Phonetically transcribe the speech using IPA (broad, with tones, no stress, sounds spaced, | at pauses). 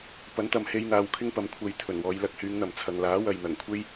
p ɐ˨˥ n t̪ ɐ˨ m h e˧ j n̪ aː˨˧ w kʰ ɪ˥ ŋ p ɐ˨˧ m kʷʰ ɐ˧ j t̪ʰ ɵ˨˩ n w ɔː˨˧ j l ɐ˨ k̚ h yː˨˧ ŋ n̪ ɐ˨˩ m t͡sʰ ɐ˨ ŋ l aː˨˥ w ɐ˨ j n̪ ɐ˨˩ ŋ kʷʰ e˥ j